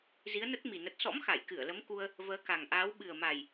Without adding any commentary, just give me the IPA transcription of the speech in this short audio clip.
zi˨˦ə̯nə˦˥t̚mi˨˩ nə˨˩t̚sɔ̰˧˥m xa˧˩jkɨ˧˩ə̯lə˨˦m ku˧ə̯ | vəː˨˦ka˨˩ŋʔaː˨˦w ɓɨ˨˩ə̯ma˨˩j

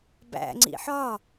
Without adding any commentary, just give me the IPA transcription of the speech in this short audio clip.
bæ̰ŋ͡ǀḭ ħɒ

